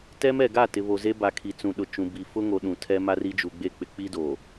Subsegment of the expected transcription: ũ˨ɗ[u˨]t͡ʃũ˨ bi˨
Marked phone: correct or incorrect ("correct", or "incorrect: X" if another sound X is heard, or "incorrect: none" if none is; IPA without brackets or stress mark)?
incorrect: ʊ˨